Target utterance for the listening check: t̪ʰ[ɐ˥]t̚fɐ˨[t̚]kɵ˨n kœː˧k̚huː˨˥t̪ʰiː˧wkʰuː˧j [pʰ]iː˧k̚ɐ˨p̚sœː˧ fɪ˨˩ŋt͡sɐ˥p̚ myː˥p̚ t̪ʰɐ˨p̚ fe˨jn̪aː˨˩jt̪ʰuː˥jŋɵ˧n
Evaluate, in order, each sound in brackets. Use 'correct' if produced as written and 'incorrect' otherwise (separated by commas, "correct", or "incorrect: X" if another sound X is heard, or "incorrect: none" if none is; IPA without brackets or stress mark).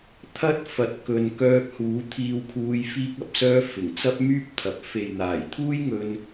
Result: correct, correct, incorrect: f